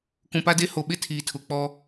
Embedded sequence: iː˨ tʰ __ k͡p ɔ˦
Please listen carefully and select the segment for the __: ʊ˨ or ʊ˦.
ʊ˨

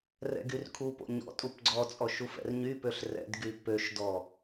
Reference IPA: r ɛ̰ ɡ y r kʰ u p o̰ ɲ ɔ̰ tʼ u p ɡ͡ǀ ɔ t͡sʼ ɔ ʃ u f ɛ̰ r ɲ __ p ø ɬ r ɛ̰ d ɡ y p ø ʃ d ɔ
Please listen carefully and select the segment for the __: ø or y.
y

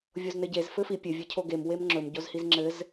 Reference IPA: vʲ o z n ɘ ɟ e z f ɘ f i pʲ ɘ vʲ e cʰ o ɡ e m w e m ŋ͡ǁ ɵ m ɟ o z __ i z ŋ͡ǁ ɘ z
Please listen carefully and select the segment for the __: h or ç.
h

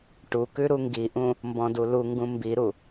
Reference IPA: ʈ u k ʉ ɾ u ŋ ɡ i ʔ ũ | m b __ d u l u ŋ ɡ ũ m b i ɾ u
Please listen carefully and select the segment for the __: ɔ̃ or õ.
ɔ̃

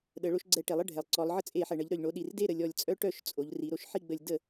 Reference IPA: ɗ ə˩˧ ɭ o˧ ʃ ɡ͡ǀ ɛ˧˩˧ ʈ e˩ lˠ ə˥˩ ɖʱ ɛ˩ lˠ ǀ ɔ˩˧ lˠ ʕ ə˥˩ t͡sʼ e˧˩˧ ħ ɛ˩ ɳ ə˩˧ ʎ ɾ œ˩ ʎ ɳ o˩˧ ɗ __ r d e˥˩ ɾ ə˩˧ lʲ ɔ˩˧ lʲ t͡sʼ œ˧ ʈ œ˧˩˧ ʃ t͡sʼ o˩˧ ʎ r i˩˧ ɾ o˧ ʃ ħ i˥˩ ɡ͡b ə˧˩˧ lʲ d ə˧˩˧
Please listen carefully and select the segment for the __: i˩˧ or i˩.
i˩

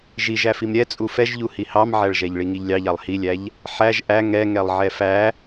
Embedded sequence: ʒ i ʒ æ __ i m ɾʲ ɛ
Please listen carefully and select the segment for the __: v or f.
f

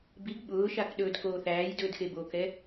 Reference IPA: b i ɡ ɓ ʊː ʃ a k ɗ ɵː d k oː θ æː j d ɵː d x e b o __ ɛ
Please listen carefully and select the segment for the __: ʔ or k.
k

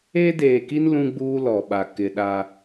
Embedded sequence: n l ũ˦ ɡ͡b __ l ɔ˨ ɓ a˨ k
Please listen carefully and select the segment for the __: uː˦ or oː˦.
uː˦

